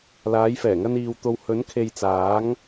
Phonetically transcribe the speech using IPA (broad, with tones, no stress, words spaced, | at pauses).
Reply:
laː˨˧jfɛː˨˩ŋɐ˧n iː˨wt̪o˨w hɵ˨˧nkʰe˨jt͡saː˨˧ŋ